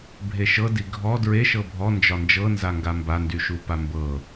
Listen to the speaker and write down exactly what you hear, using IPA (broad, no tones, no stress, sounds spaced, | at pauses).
bʱ e ʃ ɤ d i ɡʱ ɔ d ɹ e ʃ ɤ bʱ ɔ n d͡ʒ ɒ n d͡ʒ ɤ n z a ŋ ɡ a m b a n d y ʃ u p a m b ɤ